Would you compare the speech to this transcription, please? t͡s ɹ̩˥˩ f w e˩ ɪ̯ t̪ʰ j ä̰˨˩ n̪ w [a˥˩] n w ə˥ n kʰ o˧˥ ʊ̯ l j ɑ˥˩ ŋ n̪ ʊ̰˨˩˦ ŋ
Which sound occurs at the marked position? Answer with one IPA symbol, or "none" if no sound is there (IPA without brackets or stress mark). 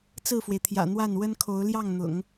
a˥˩